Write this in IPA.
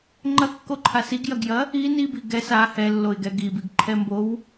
ŋ͡ǃɐkːoǃʰa siɡjɐɡjɐ | in ibi ɡɛs a hɛlːoɪ̯ɡɛ ɡibiɡǃʰɛmbow

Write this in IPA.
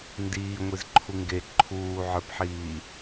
ndiːŋʷiz ǃʰuŋɡe ǃʰuːʕə˞pħiː

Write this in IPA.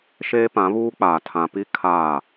ʃeː˦pã˨˦ βuː˦k͡paː˨ tʰã˨pi˦ kʰaː˦˨

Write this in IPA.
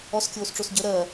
ɔskʲoːsʈ͡ʂos ɟə ɾɜ

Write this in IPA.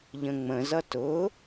ʎə̃ŋ͡mə̃zʌ tʊ

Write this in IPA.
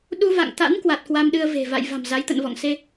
ɗu˧va̰˧˨ŋt̪a̰˧˥n kwa˨˩t̚kwa˧mɗɨ˧ə̯ve̤˨˩ va̰˧˨j va̤˨˩mza˨˦jt̪ə̰˧˨nvɔ̰˧˨ŋ se˧

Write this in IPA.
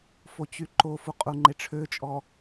fot͡ɕyǃofu qʼuŋ͡ǃeʈ͡ʂʰøt͡ʃʼɔ

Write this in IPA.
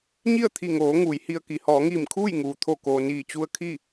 ɲi˥˨ə̯t̪ʰi˧˩ŋoː˩˧ ŋuː˩˧jhi˧ə̯ki˩˧ hɔː˩˧ŋiː˧˩mkʰuː˥˨j ŋuː˩t̪ʰo˧˩koː˩ niː˧˩t͡ɕu˧ə̯kʰi˥˨

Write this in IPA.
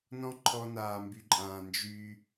nɔ̃˦ǃʰɔ˧naː˨ mby˨ǃʼãː˨ nd͡ʒy˦

